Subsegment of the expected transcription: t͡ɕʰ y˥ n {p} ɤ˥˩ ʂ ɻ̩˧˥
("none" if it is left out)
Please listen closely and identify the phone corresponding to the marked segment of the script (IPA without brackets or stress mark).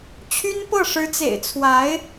p